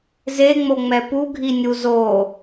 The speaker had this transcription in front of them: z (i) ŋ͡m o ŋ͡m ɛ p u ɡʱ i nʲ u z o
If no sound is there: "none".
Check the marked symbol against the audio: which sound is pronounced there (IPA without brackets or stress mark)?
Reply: e